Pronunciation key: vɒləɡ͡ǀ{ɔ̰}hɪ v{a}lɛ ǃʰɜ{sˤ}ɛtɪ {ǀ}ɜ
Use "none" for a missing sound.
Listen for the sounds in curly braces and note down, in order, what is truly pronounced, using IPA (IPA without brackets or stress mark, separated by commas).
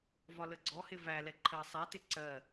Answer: ɔ, æ, sˤ, ǀ